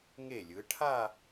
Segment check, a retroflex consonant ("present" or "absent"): present